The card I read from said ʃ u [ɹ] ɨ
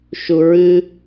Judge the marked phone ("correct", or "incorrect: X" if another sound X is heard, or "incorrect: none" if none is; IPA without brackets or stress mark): correct